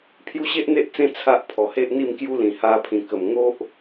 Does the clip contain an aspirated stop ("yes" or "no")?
yes